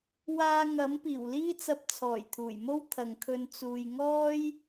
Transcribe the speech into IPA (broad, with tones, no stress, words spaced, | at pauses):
waː˧ŋɐ˨˥m piː˨˩wliː˥t͡sɐ˧p̚ t͡sʰɔː˨˩jt̪ʰuː˨˩jmo˥w t̪ʰɐ˨ŋkʰɵ˧n t͡suː˨jŋɔː˥j